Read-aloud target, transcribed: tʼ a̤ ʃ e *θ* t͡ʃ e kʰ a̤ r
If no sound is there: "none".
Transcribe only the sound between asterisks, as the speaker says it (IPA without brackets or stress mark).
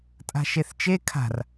θ